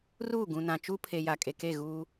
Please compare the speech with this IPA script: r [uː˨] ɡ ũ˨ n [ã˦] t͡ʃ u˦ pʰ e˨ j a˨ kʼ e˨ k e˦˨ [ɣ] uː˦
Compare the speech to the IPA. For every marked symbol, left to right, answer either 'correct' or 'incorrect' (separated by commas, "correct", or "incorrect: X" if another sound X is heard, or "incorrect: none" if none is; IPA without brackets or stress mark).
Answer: incorrect: uː˦˨, incorrect: ã˨, correct